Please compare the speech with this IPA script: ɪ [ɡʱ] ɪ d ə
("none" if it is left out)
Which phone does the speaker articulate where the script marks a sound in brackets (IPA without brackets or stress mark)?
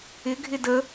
ɡʱ